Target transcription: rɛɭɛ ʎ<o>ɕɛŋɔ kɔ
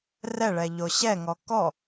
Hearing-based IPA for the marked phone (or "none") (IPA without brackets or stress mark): o